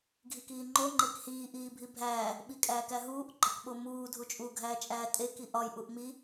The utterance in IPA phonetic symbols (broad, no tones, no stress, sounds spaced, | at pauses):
ɡʱ i k iː ŋ͡ǃ o ŋ͡ǃ e k h iː ʔ iː bʱ i bʱ æː | ɓ i kʼ æː k æ ɦ uː ʔ ɡ͡ǃ ɒ k ɓ o m uː dʱ u t͡ʃʼ u ɡʱ æː t͡ʃʼ æː tʼ e k i ʔ ɒ j ʔ u ʔ m i